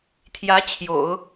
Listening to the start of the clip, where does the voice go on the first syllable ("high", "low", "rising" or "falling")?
rising